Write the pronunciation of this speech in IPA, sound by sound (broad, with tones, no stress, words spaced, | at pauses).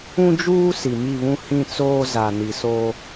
ũ˦d͡ʒuː˦ si˨mi˦˨βũ˦ hĩ˦t͡soː˦ za˨ni˨so˦